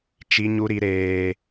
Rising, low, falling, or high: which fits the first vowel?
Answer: high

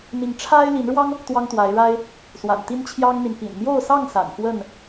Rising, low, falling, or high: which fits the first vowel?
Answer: rising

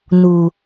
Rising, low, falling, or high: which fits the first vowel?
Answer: low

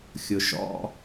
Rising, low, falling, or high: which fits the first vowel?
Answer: low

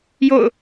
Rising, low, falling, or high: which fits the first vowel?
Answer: falling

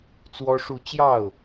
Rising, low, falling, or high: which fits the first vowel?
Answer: high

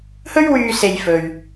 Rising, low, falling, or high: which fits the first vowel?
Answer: high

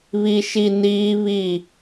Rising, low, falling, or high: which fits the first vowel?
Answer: low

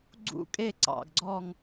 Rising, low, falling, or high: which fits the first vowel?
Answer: falling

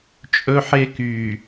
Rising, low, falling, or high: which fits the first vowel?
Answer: high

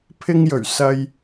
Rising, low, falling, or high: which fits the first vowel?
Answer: high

